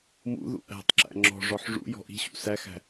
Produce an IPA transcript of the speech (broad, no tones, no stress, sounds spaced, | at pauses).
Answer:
m ṵ ð ṵ ʔ æ̤ tˤ ǁ æ̰ ŋ͡ǁ ɔ̤ ʐ ɔ ħ ʐ ṵ j ɔ̤ ʔ i̤ ɕ ṵ s æ x æ̤